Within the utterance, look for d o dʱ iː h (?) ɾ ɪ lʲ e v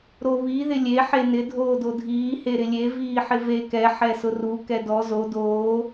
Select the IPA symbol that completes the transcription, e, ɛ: e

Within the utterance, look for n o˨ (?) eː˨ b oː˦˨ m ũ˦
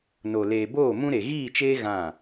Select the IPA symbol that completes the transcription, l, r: l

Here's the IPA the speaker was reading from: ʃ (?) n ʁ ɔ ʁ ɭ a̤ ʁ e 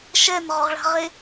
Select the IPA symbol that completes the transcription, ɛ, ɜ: ɛ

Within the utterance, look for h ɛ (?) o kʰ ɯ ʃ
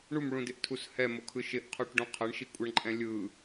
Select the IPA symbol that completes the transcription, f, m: m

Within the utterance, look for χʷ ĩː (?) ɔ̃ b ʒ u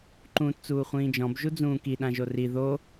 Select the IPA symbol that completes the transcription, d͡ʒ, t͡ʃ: d͡ʒ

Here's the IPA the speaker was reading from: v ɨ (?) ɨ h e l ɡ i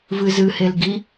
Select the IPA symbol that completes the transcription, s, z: z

